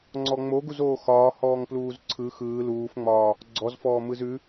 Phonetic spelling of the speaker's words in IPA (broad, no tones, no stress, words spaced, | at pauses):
ŋ͡ǀɔŋ͡moɡuz oːxɒː hɔːŋpluːzǀʰɯ xɯː luːfŋ͡mɒː | ɡ͡ǀɔzfɔː mɯzʉ